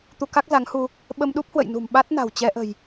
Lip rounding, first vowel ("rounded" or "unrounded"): rounded